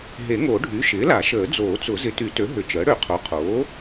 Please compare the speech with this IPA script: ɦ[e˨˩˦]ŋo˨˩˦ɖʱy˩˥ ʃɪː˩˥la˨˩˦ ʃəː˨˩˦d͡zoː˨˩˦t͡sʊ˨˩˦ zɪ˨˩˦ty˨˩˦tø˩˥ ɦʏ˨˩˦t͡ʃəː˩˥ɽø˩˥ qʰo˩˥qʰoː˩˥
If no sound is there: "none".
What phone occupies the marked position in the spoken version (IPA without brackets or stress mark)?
e˨˩˦